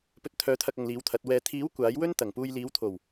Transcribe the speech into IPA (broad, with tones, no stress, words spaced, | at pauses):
pɵ˨t̚t̪ʰœː˨˥t̪ʰɐ˨k̚ ɐ˨ŋliː˨˥wt̪ʰɐ˨˥t̚wɛː˧ t̪ʰiː˨˥w kʷaː˨˥jwɵ˥n t̪ɐ˨˩ŋpuː˧j liː˨˥wt̪ʰo˨˩w